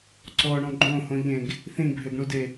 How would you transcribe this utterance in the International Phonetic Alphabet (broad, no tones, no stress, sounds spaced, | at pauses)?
ǀ ɔ ɳ ɔ̃ ɡ͡ǃ õ h õ ʎ ẽ ɡ | θ ĩ bʱ ø ɡ ɳ u d e